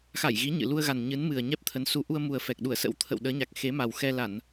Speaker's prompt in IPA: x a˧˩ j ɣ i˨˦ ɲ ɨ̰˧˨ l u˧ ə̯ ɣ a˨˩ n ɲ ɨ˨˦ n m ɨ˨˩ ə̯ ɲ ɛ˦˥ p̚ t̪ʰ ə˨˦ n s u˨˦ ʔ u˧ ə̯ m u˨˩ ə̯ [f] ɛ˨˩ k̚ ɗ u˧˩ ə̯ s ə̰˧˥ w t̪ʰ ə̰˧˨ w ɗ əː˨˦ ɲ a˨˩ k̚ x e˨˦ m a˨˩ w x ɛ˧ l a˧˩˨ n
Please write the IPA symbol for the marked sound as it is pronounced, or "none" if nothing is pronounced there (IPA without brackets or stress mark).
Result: f